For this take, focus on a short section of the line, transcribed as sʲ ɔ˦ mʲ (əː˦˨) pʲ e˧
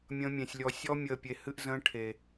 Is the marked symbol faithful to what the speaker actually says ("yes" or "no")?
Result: yes